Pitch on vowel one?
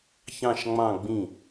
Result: falling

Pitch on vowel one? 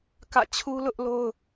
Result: falling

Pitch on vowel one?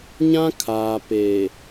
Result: high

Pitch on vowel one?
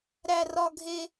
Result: high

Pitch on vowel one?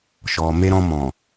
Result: low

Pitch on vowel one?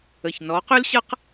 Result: low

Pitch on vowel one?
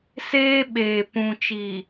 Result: high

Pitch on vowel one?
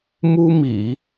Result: high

